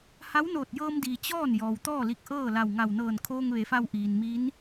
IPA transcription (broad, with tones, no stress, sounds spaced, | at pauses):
h a˧˥ w n oː˧˩ t̚ j ɤː˧ m d iː˩ t͡ɕ ɔː˥˨ n j ɔː˩ w t̪ ɔː˥˨ l i˧˩ k̚ ʔ ɤː˥˨ l a˧˩ w ŋ a˧˩ w n ɤː˧˩ n kʰ oː˧ ŋ ʋ e˩˧ f a˧ w ʔ iː˩ n m i˧˥ n